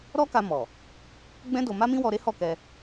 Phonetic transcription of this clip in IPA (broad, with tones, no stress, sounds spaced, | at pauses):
ɾ ɔ˦ k a˧ m ɔ˨ | ɡ͡b ɛ̃˦ d o˧ m a˦ m ĩ˦ w ɔ˧ ɾ e˦ h ɔ˦˨ k ɛ˧